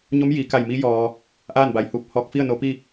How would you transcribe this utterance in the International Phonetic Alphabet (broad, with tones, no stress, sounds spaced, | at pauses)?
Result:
ɲ o˧˥ m j iː˩˧ k a˧˩ j m i˧˥ j ɔː˩ | ʔ aː˥˨ n b a˩ j h uː˧˩ p̚ h ɔː˧˩ k̚ f i˥˨ ə̯ n o˧ p i˥˨